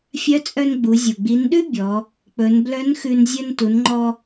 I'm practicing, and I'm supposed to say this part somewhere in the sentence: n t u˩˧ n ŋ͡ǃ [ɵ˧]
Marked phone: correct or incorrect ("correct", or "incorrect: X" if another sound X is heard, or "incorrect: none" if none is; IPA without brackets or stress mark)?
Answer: incorrect: ɔ˧